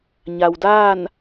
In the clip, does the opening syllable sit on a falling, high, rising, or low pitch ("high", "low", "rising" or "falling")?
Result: low